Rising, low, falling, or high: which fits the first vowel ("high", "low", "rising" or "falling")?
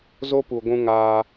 high